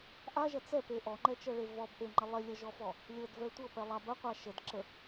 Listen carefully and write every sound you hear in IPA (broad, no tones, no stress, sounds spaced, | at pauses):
ʔ a ʒ ɐ t͡s ɛ p e ʔ ɔ ŋ͡ǃ ɛ t͡ʃ ɤ ɭ e v ɔ b ʔ e ŋ͡ǃ ɐ lˠ e lʲ ɐ ʒ ɔ f ɔ | lʲ ɤ d v ɛ tʷ ɤ p ɛ lˠ a b ɐ qʷ a ʃ ə d ǁ ə